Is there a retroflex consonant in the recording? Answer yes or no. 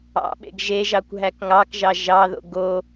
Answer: no